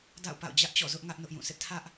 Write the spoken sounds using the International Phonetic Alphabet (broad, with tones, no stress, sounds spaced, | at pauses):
d a̰˦˨ ʊ̯ p a̰˦˨ ʊ̯ d͡ʑ ä˦ ʔ t͡ɕ ɔ̰˦˨ z ʊ˦ ʔ ŋ ä˦ ʔ n ʊ˦ ʔ j ũ˦˨ sʰ ɪ˦ ʔ tʰ ä˦ ʔ